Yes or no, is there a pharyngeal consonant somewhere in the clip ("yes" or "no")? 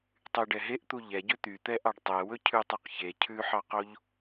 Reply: yes